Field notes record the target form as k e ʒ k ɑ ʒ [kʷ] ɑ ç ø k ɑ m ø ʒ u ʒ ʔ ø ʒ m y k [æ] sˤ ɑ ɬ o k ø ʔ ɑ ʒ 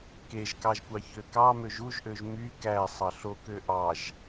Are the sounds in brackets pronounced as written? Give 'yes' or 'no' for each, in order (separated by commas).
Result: yes, yes